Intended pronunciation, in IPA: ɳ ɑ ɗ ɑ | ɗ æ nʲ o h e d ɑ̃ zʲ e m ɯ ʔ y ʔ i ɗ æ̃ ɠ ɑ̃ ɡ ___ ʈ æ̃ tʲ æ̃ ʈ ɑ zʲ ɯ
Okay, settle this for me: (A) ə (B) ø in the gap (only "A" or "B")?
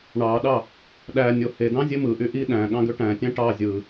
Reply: B